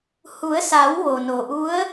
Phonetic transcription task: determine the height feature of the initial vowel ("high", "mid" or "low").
high